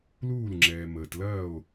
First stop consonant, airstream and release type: click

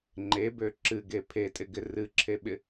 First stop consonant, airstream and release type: click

